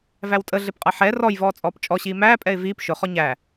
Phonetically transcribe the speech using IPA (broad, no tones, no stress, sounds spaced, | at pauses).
v æ w tʼ ə ɮ ɪ p qʼ ʌ ħ ɛ r ɔ j v ɔː t͡sʼ ɔː p t͡ʃʼ ɔ ɕ iː m æː pʼ ɛ ɪ̯ v iː p ʃ ʊ χ ɔ ɲ æ